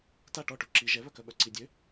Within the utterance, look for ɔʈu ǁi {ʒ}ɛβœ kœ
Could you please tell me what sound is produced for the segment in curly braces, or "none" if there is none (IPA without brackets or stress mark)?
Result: ʒ